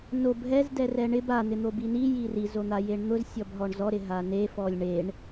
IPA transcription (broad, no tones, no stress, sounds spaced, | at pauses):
n o b ɦ ɛ z d ɛ r ɛ ɳ ɪ b a n̪ ɪ n̪ o b i n i j i r i z o n̪ a j e ɳ n̪ ʊ z sʲ ɔ b ɦ ɔ ɳ z ɔ ɾ ɪ ɦ a n e f ɔ lʲ ɳ e ɳ